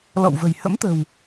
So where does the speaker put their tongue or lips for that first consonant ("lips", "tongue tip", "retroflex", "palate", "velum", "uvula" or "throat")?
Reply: tongue tip